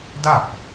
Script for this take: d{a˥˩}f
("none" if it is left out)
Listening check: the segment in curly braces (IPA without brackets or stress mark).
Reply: a˥˩